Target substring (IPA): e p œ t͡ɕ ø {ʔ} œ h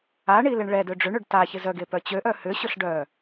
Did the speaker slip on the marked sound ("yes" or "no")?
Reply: no